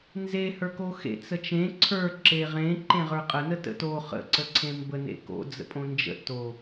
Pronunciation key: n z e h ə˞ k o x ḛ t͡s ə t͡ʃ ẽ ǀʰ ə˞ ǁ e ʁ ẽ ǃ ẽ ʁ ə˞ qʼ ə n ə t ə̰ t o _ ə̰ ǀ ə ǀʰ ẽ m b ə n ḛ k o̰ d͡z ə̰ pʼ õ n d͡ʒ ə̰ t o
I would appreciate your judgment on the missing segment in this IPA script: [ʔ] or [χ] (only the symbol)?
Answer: χ